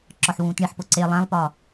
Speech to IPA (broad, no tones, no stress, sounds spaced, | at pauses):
ǁ ɒ ħ w ũː t ɳ i ħ p o ǀ e lˠ æ̃ lˠ p ɒ